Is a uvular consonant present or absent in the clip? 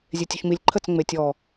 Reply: absent